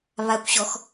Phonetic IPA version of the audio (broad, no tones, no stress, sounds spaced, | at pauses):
β a kʷ ɕ ɔ x